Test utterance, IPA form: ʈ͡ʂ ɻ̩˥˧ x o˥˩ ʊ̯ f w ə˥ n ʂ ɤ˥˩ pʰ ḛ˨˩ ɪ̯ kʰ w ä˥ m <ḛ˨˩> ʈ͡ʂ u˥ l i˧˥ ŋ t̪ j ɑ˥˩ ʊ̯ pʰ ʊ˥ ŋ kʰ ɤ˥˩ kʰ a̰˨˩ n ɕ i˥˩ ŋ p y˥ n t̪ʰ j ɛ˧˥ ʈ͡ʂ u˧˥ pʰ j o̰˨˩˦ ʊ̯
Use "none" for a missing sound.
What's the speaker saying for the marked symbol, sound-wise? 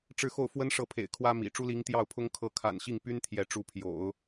ḭ˨˩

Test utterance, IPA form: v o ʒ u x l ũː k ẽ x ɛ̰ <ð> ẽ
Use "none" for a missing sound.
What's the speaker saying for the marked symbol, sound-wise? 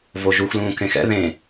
ð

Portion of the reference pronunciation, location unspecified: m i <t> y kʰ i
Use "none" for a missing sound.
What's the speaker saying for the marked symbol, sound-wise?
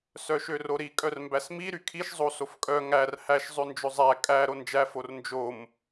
ɾ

